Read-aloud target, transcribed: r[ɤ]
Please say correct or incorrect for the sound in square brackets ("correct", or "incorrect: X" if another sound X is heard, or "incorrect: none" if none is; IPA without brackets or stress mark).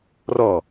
incorrect: ɔ